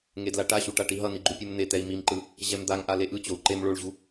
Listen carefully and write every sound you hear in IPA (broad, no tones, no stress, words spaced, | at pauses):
ŋedlaʈaɕu ʈaʈiɦʌni ɡ͡ǃupʲumn̪et̪ɛi̯ mimǃɯ | ʑɛmd̪aŋʔa leʔɯt͡ɕou̯ ǃem ɭoɭʑu